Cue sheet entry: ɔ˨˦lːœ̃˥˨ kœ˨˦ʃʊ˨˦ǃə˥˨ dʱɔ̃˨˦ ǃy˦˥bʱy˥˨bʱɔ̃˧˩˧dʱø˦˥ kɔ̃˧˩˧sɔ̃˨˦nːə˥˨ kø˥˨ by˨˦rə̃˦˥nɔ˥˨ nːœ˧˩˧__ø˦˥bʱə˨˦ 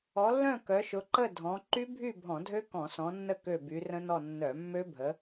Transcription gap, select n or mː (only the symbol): mː